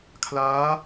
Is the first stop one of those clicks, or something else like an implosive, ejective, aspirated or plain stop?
aspirated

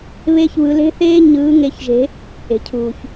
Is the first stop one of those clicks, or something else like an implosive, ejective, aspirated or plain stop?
aspirated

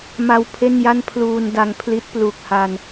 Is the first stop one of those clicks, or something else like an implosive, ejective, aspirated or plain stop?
aspirated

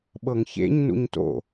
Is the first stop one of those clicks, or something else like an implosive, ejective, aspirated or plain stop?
implosive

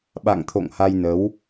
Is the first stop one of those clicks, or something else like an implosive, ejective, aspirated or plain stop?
implosive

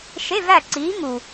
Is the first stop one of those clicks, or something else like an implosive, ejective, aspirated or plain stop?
click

